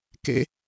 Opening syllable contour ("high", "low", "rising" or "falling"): high